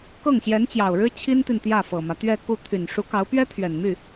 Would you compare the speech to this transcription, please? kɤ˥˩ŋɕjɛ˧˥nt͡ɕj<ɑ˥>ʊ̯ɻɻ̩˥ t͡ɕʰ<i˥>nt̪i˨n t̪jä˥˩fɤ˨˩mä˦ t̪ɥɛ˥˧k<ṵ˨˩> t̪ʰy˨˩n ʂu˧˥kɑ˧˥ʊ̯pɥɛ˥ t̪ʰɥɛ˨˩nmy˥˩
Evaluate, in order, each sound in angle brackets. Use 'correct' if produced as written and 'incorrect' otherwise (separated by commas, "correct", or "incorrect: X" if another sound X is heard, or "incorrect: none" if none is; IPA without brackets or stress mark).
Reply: incorrect: ɑ˨˩, correct, incorrect: u˥˩